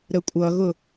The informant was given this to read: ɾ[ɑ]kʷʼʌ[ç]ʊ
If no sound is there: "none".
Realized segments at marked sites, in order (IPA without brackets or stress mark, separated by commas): ə, ɣ